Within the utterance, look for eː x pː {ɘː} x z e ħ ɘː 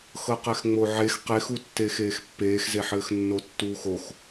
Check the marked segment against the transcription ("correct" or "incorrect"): incorrect